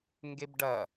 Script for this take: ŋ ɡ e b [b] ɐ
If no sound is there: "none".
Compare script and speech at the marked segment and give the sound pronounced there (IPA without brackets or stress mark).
ɖ